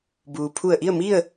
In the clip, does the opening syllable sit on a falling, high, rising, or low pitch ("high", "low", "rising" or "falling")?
low